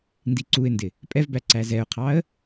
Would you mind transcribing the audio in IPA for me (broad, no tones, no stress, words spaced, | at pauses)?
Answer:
ndiǀuɪ̯ndɪ | pʼɛvbæ ǀæzɛʊ̯qʰɑə̯